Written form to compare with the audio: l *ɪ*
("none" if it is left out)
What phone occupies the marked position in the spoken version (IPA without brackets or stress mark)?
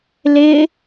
ɪ